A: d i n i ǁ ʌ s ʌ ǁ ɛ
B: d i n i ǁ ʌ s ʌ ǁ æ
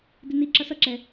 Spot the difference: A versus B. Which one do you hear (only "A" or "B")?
A